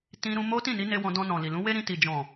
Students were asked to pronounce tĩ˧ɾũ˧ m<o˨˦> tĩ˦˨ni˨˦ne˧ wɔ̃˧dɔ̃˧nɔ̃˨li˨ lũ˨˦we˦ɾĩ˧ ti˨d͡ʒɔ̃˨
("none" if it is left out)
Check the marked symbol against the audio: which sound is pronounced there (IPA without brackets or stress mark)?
o˦